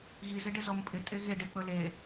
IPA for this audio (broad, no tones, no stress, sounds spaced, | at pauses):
ɣ i z ɪ ɖ ɪ z ɔ m pʼ ɪ tʼ e ɣ e ɖ ɪ k͡p ɵ l e